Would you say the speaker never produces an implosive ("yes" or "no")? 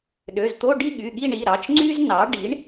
no